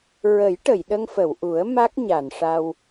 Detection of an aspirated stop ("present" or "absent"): absent